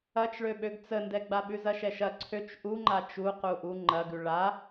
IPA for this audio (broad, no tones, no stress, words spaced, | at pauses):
ɐt͡ʃɭø ɓøɡt͡səndɛɡ͡ba ɓʉzɐʃɛʃɐ ǀʰøt͡ʃ ʔuŋ͡ǃa t͡ʃu quʔu ŋ͡ǃɐɡʉ ɭa